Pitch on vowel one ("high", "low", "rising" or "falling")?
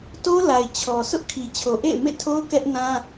high